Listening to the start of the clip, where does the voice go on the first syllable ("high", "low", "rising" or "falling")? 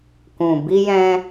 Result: low